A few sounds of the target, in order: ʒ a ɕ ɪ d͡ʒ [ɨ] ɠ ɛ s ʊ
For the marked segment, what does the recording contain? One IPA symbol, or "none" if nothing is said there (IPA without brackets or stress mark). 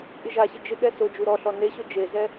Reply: ɪ